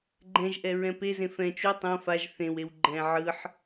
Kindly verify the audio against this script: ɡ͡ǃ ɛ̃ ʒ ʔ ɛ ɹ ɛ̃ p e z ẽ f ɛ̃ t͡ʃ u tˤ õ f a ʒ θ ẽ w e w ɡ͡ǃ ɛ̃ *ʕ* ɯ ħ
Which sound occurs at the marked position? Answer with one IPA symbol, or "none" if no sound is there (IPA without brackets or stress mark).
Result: ʕ